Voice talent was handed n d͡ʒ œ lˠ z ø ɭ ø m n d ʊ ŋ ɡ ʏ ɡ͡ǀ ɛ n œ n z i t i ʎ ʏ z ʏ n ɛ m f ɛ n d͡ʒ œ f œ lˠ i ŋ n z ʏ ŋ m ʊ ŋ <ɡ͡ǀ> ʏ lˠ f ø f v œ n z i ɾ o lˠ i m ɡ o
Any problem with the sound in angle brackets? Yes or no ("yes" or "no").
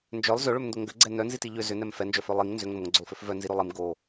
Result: no